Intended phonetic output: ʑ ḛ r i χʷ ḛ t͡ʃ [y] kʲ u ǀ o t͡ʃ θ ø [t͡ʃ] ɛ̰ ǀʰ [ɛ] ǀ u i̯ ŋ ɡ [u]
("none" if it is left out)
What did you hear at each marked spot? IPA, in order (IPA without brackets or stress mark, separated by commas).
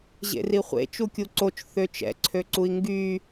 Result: u, t͡ʃ, ø, y